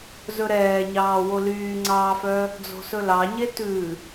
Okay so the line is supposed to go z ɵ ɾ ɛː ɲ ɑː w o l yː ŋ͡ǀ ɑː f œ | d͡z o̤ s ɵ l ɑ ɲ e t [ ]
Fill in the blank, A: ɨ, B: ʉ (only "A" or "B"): B